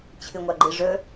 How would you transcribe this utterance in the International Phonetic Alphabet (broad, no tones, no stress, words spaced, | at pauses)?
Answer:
t͡ɕʰɨŋʷaɡ͡ǃɨ ʐɵ